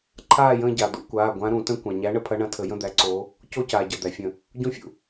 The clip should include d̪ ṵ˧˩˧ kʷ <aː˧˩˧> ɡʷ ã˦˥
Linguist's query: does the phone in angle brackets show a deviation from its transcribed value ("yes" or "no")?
yes